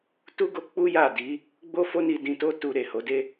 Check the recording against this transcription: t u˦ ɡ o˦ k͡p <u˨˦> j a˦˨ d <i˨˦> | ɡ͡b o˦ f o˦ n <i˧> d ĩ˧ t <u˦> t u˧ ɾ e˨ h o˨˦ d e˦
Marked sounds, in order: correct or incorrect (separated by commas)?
incorrect, correct, correct, incorrect